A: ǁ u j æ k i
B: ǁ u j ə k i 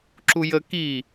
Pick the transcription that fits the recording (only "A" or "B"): B